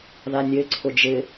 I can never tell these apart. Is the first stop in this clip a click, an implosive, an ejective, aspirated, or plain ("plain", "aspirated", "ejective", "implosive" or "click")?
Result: click